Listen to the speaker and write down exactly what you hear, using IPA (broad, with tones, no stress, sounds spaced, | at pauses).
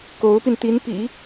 k o˧˥ ʊ̯ p i˧ n t̪ i˧˥ n p ḭ˨˩˦